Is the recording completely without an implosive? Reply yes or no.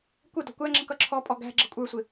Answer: yes